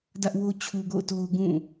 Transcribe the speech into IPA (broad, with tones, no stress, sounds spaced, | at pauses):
d ä˦ ʔ w o˦ t͡ɕʰ u˦ ɡ o̰˦˨ ʊ̯ t o˦ ʊ̯ ɡ ũ˦˨